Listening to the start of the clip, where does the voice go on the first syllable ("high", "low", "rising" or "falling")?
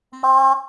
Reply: high